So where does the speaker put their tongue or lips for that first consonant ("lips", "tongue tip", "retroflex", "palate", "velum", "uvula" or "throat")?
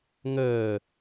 velum